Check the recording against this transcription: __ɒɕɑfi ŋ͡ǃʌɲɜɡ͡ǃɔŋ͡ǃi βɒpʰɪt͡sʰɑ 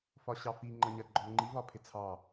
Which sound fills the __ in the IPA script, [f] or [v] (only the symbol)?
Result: f